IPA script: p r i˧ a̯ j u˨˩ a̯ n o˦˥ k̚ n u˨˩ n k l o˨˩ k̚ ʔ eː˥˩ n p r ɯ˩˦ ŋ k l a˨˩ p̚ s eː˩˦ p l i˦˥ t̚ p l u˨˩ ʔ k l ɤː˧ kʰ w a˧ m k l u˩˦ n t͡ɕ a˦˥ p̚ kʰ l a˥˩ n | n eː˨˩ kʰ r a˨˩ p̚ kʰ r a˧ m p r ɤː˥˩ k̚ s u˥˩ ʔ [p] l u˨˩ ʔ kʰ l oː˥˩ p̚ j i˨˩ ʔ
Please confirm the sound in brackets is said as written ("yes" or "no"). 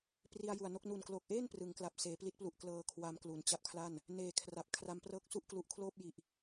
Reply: no